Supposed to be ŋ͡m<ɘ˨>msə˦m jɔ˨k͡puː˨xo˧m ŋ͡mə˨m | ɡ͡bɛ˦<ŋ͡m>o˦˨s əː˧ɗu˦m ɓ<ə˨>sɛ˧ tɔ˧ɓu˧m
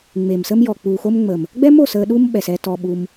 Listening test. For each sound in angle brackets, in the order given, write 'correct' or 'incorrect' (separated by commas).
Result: incorrect, incorrect, incorrect